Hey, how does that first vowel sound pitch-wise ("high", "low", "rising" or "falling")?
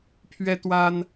high